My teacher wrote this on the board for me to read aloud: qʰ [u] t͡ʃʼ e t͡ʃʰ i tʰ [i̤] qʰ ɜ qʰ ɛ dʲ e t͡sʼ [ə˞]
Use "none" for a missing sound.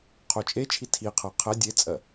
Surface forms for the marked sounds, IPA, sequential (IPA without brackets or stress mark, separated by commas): o, i, ɜ